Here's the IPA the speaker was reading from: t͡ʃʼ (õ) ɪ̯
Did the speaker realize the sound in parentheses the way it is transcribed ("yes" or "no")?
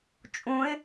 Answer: no